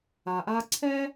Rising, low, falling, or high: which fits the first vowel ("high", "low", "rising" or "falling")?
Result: low